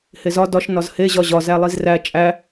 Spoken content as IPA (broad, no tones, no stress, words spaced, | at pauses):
hezɒ dɒʃ nɒzhe ʑɒʑɒ zælˠizræ t͡ʃʼæ